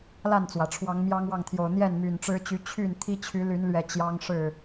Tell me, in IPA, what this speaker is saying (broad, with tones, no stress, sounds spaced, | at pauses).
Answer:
l a˥˨ n t͡s w ä˩ ʈ͡ʂʰ w ɑ˨˦ ŋ m j ɑ˦ ŋ w ɑ˥˨ ŋ t̪ʰ j o˨˩ ʊ̯ n̪ j ɛ˥˨ n m y˨˩ n ʈ͡ʂ ɻ̩˦ t͡ɕ y˨˦ t͡ɕʰ y˥˨ n t̪ʰ i˦ t͡ɕʰ y˨˦ l y˨˦ n l ɥ ɛ˨˩ t͡ɕ j ɑ˦ ŋ ʂ ɻ̩˥˨